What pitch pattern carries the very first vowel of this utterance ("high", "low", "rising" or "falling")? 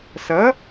rising